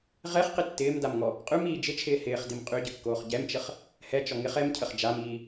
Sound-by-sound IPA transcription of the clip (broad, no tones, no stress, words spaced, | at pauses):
ʁɛχqɪ tːɪːmdamŋɔ | qʼʉmiː d͡ʒɪt͡ʃʰɪː hɪːχdim qʼyɟəkːoːχ ɟɛmt͡ʃəχ | hɛt͡ʃɔ ŋɪχ ɛmcʰəχ d͡ʒamiː